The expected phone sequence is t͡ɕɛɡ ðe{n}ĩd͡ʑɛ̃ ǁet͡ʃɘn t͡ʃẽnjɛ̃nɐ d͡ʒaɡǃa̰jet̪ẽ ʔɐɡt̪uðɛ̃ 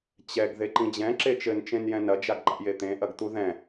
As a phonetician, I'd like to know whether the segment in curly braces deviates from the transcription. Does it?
yes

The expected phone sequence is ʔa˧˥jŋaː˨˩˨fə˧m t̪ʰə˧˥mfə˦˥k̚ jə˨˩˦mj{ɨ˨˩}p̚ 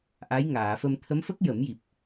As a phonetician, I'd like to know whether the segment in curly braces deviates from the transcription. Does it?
yes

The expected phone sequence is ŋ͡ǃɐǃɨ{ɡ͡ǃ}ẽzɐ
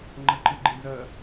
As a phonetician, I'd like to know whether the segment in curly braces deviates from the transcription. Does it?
no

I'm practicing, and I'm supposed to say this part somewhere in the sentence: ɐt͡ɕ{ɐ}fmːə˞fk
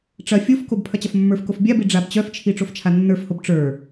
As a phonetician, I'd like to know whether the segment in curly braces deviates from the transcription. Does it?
no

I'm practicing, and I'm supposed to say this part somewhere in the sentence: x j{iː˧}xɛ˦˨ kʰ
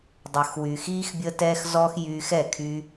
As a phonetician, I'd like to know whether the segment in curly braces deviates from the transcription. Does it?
yes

